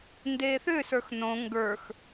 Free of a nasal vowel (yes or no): no